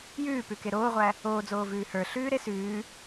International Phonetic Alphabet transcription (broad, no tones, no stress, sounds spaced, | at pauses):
j ʉː p ʉ k e ɾ oː ʁʷ æ | oː d͡z oː v ʉː h ə˞ ɬ ʉː ɾ e s ʉː